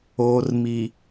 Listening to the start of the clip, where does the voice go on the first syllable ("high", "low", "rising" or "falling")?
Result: low